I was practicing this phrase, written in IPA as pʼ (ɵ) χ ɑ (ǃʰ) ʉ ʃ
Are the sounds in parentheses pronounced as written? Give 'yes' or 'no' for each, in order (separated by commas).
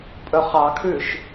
yes, no